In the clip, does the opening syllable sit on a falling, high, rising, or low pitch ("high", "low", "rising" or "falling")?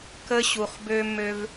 high